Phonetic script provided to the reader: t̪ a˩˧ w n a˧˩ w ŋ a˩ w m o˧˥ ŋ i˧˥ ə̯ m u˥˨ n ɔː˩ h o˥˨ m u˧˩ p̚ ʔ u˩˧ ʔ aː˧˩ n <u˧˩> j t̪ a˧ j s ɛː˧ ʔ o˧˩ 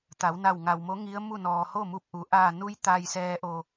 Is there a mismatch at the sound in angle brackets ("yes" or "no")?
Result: yes